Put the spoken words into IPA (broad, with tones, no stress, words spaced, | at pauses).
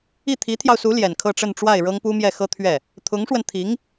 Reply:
i˥˩t̪ʰi˧˥t̪ʰjɑ˧ʊ̯su˧˥ ljɛ˨˩nkʰɤ˥˧ʈ͡ʂə˥˧nʈ͡ʂwa˥˩ɪ̯ ɻɤ˥ŋpu˥mjɛ˥˩xɤ˥ t̪ʰɥɛ˥˩ | t̪ʰʊ˧˥ŋʂwə˧nt̪ʰi˧˥ŋ